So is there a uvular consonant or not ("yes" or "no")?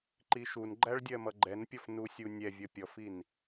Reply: no